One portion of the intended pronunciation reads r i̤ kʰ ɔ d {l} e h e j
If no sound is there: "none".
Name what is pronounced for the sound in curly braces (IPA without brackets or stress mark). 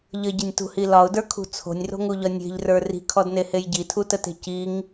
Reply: n